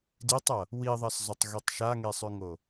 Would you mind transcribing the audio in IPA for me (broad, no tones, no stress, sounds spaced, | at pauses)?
d i tˤ ɐ | w i ðˤ ɐ s zˤ ɵ tˤ ɣ i tˤ ʃ a ŋ e sˤ ʉ ŋ o